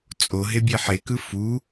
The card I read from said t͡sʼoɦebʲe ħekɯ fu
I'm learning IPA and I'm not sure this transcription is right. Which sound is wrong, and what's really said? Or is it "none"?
none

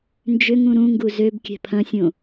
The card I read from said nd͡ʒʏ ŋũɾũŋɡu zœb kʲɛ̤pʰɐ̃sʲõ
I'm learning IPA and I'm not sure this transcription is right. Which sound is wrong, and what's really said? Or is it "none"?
œ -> ø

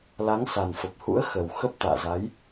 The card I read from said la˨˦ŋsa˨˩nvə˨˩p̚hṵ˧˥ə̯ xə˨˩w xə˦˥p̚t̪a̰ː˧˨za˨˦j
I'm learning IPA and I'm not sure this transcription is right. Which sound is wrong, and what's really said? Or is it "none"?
v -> f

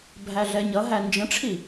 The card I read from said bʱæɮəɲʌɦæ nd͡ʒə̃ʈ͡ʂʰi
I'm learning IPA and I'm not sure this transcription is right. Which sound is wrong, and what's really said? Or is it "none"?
ə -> ɛ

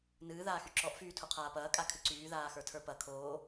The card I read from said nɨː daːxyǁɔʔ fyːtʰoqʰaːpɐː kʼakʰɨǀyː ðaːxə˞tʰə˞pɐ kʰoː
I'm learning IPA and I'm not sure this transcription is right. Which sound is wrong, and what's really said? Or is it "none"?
d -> ð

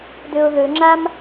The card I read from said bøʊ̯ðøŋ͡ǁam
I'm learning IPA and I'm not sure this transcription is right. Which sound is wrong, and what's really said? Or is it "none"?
b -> d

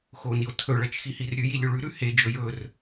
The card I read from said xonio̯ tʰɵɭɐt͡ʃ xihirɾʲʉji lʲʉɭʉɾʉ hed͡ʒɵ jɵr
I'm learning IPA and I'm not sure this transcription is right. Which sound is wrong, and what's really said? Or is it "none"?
none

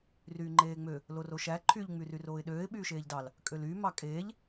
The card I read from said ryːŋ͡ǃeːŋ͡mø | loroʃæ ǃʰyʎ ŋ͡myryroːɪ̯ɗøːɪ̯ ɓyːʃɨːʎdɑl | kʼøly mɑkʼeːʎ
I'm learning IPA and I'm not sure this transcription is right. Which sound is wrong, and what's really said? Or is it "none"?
ɨː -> eː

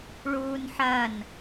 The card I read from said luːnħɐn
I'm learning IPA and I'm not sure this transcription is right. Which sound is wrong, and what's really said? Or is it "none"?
l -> ɭ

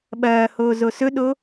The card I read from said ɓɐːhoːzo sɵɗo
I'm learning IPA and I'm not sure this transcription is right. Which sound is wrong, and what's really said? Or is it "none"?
none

